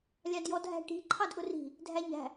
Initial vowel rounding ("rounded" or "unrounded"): unrounded